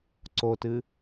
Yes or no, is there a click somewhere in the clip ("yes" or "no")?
yes